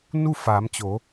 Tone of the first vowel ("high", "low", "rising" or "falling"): falling